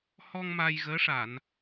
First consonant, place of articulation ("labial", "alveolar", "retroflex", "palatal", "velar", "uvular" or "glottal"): glottal